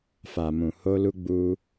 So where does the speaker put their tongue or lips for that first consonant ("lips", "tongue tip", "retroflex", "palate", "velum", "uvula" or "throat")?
lips